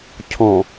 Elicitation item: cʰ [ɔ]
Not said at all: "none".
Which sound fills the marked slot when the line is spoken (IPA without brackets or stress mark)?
ɔ̃